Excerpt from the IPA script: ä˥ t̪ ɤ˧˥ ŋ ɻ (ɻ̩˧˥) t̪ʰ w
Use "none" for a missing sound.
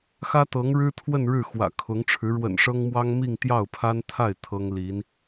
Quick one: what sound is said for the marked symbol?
ɻ̩˥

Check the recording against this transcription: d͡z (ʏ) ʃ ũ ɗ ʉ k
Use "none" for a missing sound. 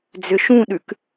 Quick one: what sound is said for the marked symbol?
ʏ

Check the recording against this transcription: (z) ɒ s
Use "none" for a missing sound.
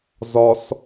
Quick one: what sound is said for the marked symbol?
z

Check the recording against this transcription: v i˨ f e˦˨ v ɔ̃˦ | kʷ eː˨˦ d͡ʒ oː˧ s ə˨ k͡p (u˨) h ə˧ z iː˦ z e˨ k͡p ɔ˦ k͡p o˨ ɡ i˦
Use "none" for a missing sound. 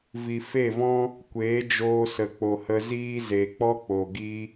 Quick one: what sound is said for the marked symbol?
o˨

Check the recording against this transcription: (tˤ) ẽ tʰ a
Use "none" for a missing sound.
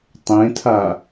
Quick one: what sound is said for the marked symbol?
tˤ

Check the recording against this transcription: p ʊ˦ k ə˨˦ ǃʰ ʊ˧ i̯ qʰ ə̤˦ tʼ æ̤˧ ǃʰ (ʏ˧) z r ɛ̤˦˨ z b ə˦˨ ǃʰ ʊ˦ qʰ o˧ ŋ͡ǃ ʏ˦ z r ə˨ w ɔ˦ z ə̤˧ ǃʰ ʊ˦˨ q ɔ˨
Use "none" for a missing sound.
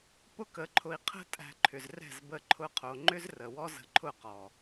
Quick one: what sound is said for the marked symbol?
ʏ˨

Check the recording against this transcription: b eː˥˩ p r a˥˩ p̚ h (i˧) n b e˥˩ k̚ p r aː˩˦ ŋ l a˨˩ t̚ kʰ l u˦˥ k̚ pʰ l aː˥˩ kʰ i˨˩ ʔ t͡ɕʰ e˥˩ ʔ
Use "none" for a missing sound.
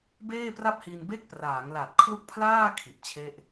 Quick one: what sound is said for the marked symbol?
i˧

